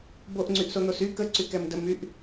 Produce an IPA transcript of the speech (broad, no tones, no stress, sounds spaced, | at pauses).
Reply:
b o ʔ ŋ͡ǀ y ʔ s o n̪ o s y k ə ǀ y k ɛ m d ə m y ʔ